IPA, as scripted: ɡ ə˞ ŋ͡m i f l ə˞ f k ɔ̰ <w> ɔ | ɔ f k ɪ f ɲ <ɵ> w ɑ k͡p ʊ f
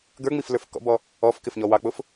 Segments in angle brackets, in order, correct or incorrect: incorrect: b, incorrect: ɔ

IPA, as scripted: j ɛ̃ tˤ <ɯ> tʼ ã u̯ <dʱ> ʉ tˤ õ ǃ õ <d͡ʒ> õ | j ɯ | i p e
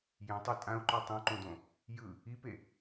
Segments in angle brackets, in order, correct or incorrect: correct, incorrect: ǃ, incorrect: d

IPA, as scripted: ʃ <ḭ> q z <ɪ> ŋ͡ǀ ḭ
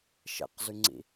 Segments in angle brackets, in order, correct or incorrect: incorrect: ḛ, incorrect: y

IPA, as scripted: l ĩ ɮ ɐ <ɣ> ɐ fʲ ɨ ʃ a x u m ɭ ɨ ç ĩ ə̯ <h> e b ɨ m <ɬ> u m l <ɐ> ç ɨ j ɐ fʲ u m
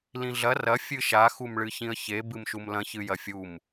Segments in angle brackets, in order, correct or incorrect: incorrect: r, incorrect: ç, incorrect: ʃ, incorrect: ɐ̃

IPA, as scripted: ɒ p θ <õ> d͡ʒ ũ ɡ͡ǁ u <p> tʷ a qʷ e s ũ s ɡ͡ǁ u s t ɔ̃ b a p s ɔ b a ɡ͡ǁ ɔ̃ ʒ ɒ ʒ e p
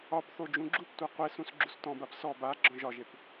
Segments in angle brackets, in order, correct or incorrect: incorrect: o, correct

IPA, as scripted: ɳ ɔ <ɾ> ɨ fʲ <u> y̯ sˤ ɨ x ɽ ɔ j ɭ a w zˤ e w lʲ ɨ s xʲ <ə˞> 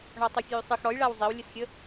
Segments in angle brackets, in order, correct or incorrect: incorrect: tˤ, correct, incorrect: ə

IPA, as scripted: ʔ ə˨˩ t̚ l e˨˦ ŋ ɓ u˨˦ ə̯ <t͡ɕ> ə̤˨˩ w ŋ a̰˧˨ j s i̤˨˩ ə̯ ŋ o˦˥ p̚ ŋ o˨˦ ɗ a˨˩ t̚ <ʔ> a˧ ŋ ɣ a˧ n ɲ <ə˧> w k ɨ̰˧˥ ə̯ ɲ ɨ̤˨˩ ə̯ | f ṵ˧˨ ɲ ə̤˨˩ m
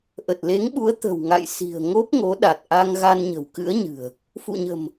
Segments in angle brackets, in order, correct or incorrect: incorrect: t̪, correct, incorrect: ə̤˨˩

